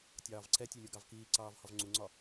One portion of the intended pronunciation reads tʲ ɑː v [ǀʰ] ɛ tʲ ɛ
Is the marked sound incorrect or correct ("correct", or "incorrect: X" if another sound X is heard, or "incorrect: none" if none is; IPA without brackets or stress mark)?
correct